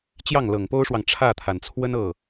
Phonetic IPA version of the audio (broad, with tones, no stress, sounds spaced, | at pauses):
t͡ɕ j ɑ˥˩ ŋ l ɤ˨˩ ŋ p o˥ ʊ̯ ʂ w ɑ˨ ŋ ʈ͡ʂʰ ä˥˩ t̪ʰ a˩ n t͡sʰ w ə˥ n ɤ˥˩